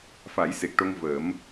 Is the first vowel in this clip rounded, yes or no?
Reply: no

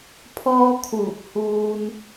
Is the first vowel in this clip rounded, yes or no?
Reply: yes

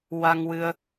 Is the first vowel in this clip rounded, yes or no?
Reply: no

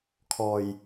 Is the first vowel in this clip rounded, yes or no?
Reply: yes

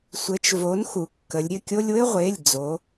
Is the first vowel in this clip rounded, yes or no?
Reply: no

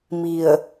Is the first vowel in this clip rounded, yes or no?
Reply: no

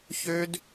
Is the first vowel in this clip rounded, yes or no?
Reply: yes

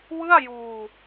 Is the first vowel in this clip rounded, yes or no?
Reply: no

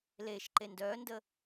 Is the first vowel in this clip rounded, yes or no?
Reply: no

